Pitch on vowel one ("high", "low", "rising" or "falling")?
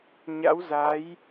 rising